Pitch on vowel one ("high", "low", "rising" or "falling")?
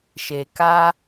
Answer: low